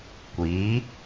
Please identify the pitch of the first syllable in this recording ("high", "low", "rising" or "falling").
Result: rising